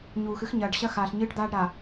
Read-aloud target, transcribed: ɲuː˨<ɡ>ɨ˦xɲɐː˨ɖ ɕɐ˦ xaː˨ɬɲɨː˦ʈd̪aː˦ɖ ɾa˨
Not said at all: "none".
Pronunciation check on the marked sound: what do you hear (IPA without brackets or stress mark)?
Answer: x